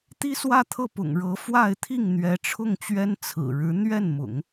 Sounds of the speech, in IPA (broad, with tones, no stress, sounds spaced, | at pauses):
t̪ i˥ s w ä˥˧ t̪ʰ ɤ˥˩ p ʊ̰˨˩ ŋ ɻ ɤ˧˥ f w a˥˧ ɪ̯ t̪ʰ i˥˩ ŋ n̪ ɥ ɛ˧˥ ʈ͡ʂʰ ʊ˥˩ ŋ t͡ɕ ɥ ɛ˥ n t͡sʰ ɹ̩˨˩ ɻ ɻ̩˧˥ n̪ ɥ ɛ˥˩ n m ʊ̰˨˩˦ ŋ